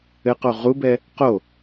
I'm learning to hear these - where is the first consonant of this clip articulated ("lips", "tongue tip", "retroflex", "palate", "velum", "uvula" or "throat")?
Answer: uvula